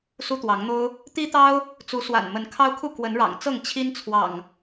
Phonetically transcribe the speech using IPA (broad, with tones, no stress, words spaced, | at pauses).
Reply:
su˦t̪wɑ˨˦ŋn̪o˦ʊ̯ | t̪i˦t̪ɑ˦ʊ̯ | t͡su˨˦swa̰˨˩n mə˨˦n kʰɑ˦ʊ̯kʰu˥˨ kwə˨˦nɻɑ̰˨˩ŋ t͡sɤ˥˨ŋ t͡ɕʰi˦nt͡sʰwɑ̰˨˩ŋ